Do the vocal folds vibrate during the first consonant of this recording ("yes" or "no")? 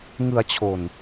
yes